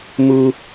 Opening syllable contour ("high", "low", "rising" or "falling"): high